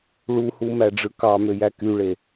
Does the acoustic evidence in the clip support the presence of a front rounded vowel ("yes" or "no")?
yes